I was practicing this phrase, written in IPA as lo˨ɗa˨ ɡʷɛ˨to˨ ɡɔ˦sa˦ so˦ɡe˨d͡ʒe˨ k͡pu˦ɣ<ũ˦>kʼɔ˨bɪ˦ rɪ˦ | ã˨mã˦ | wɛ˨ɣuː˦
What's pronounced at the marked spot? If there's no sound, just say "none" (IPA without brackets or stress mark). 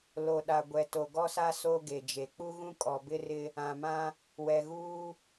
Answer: ũ˦